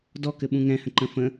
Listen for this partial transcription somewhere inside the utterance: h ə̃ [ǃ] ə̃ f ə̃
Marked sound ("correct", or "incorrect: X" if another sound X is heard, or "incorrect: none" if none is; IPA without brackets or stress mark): correct